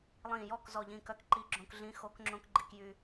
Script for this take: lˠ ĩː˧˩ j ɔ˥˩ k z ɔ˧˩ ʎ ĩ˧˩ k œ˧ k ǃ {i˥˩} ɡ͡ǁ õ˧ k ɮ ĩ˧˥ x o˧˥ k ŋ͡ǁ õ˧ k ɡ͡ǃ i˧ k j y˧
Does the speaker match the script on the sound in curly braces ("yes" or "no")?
no